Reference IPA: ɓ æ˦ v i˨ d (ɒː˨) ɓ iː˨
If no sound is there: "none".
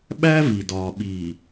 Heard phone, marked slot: ɒː˨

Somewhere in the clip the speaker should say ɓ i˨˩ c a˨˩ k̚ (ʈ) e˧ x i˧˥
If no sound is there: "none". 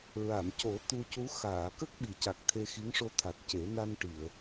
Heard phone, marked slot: t̪ʰ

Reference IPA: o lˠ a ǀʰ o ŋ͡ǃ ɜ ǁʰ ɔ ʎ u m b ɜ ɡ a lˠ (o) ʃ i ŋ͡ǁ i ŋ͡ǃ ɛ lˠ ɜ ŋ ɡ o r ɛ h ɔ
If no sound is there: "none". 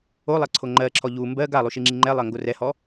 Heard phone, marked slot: u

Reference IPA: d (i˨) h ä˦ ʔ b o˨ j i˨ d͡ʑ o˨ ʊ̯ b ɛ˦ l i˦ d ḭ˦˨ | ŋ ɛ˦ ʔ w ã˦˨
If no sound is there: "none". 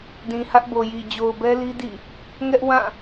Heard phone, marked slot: ĩ˨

